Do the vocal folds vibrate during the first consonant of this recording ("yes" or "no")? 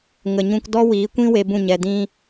yes